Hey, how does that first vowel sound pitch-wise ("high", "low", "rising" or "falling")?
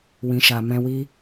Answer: low